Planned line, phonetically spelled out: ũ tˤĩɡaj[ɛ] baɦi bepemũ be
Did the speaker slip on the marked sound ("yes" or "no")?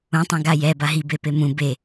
no